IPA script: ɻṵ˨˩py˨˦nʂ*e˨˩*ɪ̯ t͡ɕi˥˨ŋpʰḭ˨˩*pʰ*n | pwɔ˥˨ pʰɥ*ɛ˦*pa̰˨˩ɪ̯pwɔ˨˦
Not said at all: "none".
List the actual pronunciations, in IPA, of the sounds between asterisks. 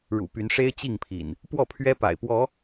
e˦, none, ɛ˦

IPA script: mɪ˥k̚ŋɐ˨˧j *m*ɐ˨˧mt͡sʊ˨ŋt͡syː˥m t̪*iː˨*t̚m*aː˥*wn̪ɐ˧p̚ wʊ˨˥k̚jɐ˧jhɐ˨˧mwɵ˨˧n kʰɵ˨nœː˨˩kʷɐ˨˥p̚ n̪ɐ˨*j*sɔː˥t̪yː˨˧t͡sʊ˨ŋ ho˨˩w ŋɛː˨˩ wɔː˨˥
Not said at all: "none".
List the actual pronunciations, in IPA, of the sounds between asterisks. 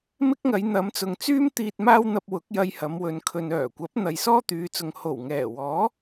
n̪, iː˧, aː˥, j

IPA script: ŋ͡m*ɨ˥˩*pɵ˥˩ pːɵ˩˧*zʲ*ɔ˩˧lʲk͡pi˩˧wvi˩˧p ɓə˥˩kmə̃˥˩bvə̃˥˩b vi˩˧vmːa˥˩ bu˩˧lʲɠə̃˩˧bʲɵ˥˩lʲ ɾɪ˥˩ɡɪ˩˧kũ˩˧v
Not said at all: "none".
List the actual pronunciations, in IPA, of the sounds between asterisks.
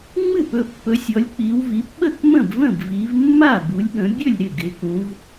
ɨ˥˩, sʲ

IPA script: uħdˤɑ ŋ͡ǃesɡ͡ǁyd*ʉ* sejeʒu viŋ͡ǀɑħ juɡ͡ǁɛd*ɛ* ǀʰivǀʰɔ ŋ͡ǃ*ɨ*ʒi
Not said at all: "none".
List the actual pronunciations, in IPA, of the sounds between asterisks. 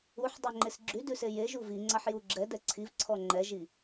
ʉ, ɛ, ɛ

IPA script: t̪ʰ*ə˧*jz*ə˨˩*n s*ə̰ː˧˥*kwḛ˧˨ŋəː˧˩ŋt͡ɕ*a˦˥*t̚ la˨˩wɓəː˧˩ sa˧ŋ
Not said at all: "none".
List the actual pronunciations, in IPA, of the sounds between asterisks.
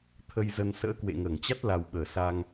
ə˧, ə˧, ə̰ː˧˥, a˦˥

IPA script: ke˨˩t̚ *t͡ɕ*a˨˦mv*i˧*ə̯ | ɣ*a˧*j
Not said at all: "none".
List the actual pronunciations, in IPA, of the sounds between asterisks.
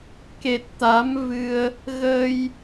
t̪, ɨ˧, ə˧

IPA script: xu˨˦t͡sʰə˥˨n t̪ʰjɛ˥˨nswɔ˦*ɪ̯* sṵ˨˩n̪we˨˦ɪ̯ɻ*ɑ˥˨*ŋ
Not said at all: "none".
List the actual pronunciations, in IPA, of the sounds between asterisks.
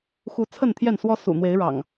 none, ɑ̰˨˩

